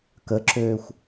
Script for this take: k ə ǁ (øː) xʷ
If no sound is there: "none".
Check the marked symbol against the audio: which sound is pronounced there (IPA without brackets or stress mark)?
øː